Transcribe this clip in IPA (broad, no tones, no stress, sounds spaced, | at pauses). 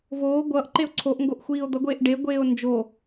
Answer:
v oː ɡʷ ʌː ʔ ǃ e o̯ ǀʰ o ʔ ŋ ɡ o ʔ xʷ iː o̯ d̪ ʌ ɡʷ eː ʔ ɖ e ɡʷ eː o̯ n d͡ʒ o